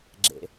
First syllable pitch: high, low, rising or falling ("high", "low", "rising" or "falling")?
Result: low